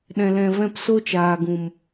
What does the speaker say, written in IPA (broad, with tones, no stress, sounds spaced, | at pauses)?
ɗ ɛ̃˧ l ɛ̃˧ v ɛ̃˦˨ p s o˦ t͡ʃ aː˨ ɡ ũ˨ m